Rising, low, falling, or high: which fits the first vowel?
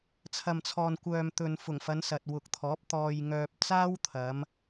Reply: low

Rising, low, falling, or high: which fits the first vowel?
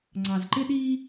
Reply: low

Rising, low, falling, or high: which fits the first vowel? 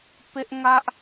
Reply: high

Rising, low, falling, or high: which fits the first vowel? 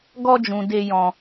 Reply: high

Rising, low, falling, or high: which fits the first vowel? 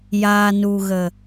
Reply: low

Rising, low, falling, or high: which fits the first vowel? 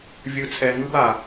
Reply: low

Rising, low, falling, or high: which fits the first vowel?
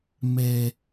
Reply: low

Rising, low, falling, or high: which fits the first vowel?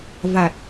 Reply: low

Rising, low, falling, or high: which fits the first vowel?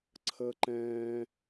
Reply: high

